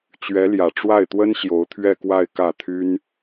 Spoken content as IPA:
t͡ɕ ɥ ɛ˧˥ l j ä˨˩ ʈ͡ʂ w a˥˩ ɪ̯ t̪ w ə˥ n ɕ j o˧˥ ʊ̯ t̪ʰ ɥ ɛ˥˧ k w a˥˧ ɪ̯ k ä˥˩ t̪ʰ y˥ n

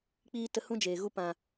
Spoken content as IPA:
k͡p iː˦ t ə˧ h ũ˦ d͡ʒ eː˨ ɣ u˦ p ã˨

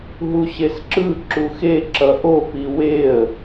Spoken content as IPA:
ɦ u ɕ e s ǁ ɯ ǁ u x e ǁ ʌ ʔ o p i w e ə̯

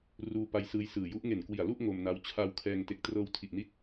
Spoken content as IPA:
r uː˧ p a˧ j s ɯː˧ j s ɯː˨˩ j u˦˥ ʔ ŋ e˨˩ n k w i˨˩ a̯ l u˥˩ ʔ ŋ o˧ m n a˦˥ w t͡ɕʰ a˧ w kʰ ɛː˧ ŋ t e˨˩ k̚ t r ɤː˧ w tʰ i˨˩ ʔ n i˦˥ t̚

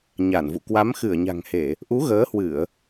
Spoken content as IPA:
ɲ a˧˩ n v ṵ˧˨ k w a˨˦ m x ɨ˧˩ ə̯ ɲ a̤˨˩ ŋ h e˧˩˨ | ʔ u˨˦ ɣ əː˨˦ h w ɨ˧˩˨ ə̯

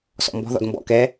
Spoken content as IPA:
s ɔ̰ m b ɔ̤ ð ɔ̰ d m b ɔ̰ k ɛ

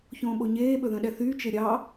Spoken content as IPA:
ç õː ɓ o ɲ eː ɓ ɵ ð œ̃ ɗ ɛ θ yː t͡ʃ e ɾʲ ɑ

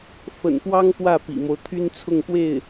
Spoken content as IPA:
f ə̰˨˩ n p w ɑ˥ ŋ p w ä˥˩ p ḭ˨˩ m o˦ ʊ̯ t̪ʰ y˥ n t͡sʰ ʊ˥˧ ŋ p w e˥˩ ɪ̯

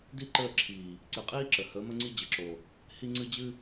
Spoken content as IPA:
d i˦ ǃ əː˦˨ ǁʰ iː˨ | ǀ ɨ˨ qʼ iː˦ ǁ ə˨ h əː˨˦ m ə˦ ŋ͡ǀ i˦ d͡ʑ ə˨ ǁ o˨ | h i˦ ŋ͡ǀ ɨ˦ d͡ʑ ɨ˦

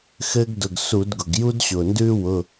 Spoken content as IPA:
x ɘː˥ ɡ d ʊ˩˧˩ ɡ s u˧˩˧ d ɡ ʊ˩ ɡ j u˥ d ɕ ʊː˩ n d ʉː˥ w ʊ˩˧˩

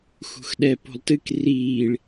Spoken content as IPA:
x ṳ x ɗ ɛ p o̤ lˠ t ɨ k r iː ɭ

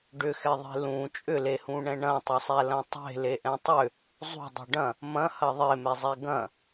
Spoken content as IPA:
ɖ ʏ x ɛ ðˤ e̤ l ũ t͡ʃʼ ʏ l e h ũ ɳ ɛ̃ ɳ ɐ̃ tˤ ʏ sˤ ɛ l ɐ̃ tˤ e̤ l e ʔ ɛ̃ tˤ ʏ | zˤ ṳ dˤ ṳ ɖ ɐ̃ | m ɐ̃ h ɐ ðˤ e m ɛ zˤ ɛ ɡ ɐ̃

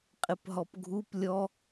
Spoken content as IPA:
qʼ ɪ p ɦ ɔ p ɡʱ u p lʲ ɔ

